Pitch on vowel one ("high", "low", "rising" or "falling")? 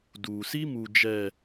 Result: low